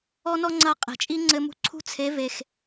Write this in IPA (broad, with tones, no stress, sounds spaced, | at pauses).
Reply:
ɔ˦ n ɔ˦ ŋ͡ǀ ɐ˧ qʼ e̤˨ t͡ʃʼ i˦ ŋ͡ǀ ɘ˧ m ṳ˧ ǀʰ ṳ˦ t͡sʰ e˨˦ v e˨ x